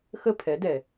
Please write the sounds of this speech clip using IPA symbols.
x ə˦˨ pʰ ɛ˨˦ d ɛ˨

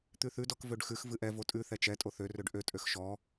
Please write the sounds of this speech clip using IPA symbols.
t̪ ʉ θ ʉ d ɔ k v ø ɖ x ʉ x v ɨ ʔ ɛ v o tʼ ʉ θ ɛ t͡ʃ ɛ tʼ o θ ø r ø ɖ ʔ ø tʼ ø x ʃ ɔ

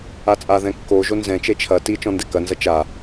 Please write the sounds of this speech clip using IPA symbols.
a t͡sʼ a ð ɛ̃ kː o ʒ o n z ɛ̃ t͡ʃ e t͡ʃʰ ɐ t i t͡ʃ ɔ̃ n d ɛ k ɐ n z ɐ t͡ʃ a

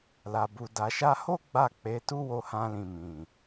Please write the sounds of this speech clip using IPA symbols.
l a˨ b u˨ d a˨ ʃ a˧ h o˦ ɡ͡b a˦˨ k͡p e˨˦ t u˦ w o˧ h ã˧ l ĩ˨ m ĩ˨

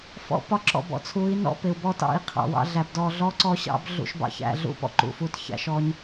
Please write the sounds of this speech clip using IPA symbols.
f ɔ̰˧ p ɒ˧ ǁ ɔ̰˨ b ɔ̰˨ t͡sʰ u˨˦ i̯ n ɔ̰˦ p ɪ˨ u̯ b ɔ˦ t ɑ̰˦˨ i̯ qʰ ɑ̰˨ w ɑ̰˧ ɮ æ˨ b d ɔ˧ ɮ ɔ˦ ǀ ɔ˦ ɕ ɑ̰˦ b ɮ ṵ˧ ʃ b ɑ̰˧ ç æ̰˧ ɮ ṵ˦ p ɔ̰˨ ǃ ṵ˨ f u˧ t ç æ̰˧ ʃ ɔ˧ ɲ

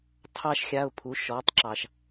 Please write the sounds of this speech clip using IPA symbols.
tʰ ɑ˥ ʃ xʲ a˧˥˧ ʊ̯ pʰ u˩˥ ʃ ɔ˩˥ tˤ ǁ ɑ˨ ʃ

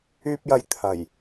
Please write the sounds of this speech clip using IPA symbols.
yː˧ p̚ j ɐ˨ j t̪ʰ ɐ˨˩ j

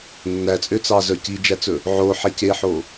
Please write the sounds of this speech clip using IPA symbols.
nː æ t͡sʼ ø t͡s ɑ z œ c i d͡ʒ æ t͡s ɵ | ʕ o ħ e c e ħ o

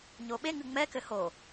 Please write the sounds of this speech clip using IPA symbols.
ɲ o ɓ e ŋ ɨ ŋ͡m ɛ k ɘ h o

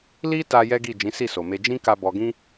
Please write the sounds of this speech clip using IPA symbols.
l i˦ t a˧ j ɛ˦ ɡ i˦˨ d͡ʒ ĩ˨˦ s i˦˨ s o˨ m e˧ d͡ʒ ĩ˦ k a˧ b ɔ˧ ɡ ĩ˦

